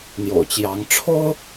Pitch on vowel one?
low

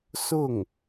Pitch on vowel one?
falling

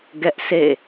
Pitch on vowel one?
high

